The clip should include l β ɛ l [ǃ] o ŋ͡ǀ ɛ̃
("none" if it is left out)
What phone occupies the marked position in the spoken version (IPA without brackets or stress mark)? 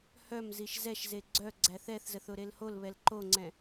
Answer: ǃ